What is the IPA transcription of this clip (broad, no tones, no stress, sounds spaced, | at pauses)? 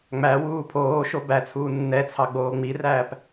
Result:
ŋ͡m æ w uː pʰ oː ʃ o b æ t͡sʰ uː nː ɛ t͡sʰ ɑ ɡ͡b oː ŋ͡m i r æː p